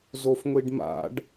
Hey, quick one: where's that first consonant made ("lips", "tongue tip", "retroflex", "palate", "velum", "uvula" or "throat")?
tongue tip